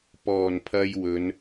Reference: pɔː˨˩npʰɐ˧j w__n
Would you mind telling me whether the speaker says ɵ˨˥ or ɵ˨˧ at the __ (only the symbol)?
ɵ˨˧